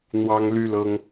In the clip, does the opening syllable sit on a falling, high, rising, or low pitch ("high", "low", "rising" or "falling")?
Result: high